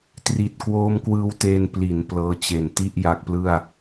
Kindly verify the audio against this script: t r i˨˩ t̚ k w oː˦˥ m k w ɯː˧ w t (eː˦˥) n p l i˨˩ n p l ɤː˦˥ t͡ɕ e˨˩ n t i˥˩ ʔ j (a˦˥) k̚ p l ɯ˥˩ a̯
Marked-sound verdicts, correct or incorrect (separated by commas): incorrect, correct